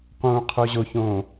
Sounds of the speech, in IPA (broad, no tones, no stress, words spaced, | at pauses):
qũːqʰoʑoçõː